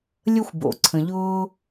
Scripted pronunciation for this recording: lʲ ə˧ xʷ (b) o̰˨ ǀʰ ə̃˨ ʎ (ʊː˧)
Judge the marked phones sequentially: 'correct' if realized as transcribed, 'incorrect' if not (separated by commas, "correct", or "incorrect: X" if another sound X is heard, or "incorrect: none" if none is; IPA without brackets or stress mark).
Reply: correct, correct